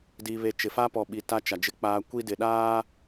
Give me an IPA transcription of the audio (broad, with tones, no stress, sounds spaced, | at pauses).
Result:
d i˨ β e˨ t͡ʃ ɪ˨ f a˦ p ɔ˨ ɓ i˨ t a˦ t͡ʃ a˨ d͡ʒ ɪ˦ k͡p aː˦ kʷ i˦ d ɪ˨ ɗ aː˦